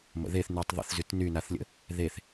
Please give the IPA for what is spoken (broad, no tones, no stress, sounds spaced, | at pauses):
m ə̰ ð e θ n y tˤ ðˤ ə̰ θ z y t n y n a θ lʲ ə̰ | ð e θ